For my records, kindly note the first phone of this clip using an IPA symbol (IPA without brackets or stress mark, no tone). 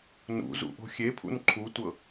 n